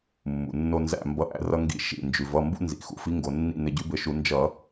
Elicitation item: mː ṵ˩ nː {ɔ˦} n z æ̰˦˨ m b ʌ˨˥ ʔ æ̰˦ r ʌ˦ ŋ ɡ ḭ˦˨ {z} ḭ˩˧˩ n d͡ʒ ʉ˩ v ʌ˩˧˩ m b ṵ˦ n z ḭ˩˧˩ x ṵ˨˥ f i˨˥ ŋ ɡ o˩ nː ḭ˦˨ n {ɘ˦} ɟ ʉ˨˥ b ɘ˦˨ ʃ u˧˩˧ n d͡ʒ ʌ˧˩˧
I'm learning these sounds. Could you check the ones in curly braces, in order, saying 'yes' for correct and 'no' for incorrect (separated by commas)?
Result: no, no, no